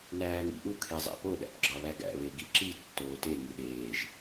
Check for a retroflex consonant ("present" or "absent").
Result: absent